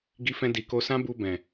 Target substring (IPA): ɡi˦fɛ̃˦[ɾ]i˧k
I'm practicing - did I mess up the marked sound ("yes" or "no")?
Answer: yes